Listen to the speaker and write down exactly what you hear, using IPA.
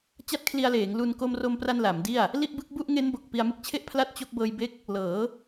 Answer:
t͡ɕ a˥˩ t̚ kʰ l i˧ a̯ l eː˩˦ ŋ l u˧ n k o˧ m r o˧ m p r a˧ n l a˩˦ m d i˥˩ a̯ | l i˥˩ ʔ b ɯ˦˥ k̚ b u˥˩ ʔ ŋ e˦˥ n b o˨˩ k̚ p i˧ a̯ m ɯ˦˥ k̚ t͡ɕʰ e˥˩ ʔ pʰ l a˥˩ t̚ t͡ɕ o˦˥ k̚ b ɤː˧ j b e˦˥ k̚ | l ɤː˩˦

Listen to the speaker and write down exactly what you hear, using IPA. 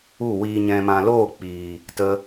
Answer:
u˦˨ w iː˨ ɲ ɛ̃˨ m ã˨ l oː˦˨ k͡p iː˨ | t ə˧

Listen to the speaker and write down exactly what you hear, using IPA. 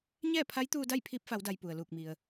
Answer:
ɲ ɛː˥˨ pʰ a˧˥ j t̪ uː˧ d a˥˨ j pʰ iː˧ p̚ f a˩˧ w d a˩ j p u˩ ə̯ l uː˧˩ k̚ m i˩ ə̯

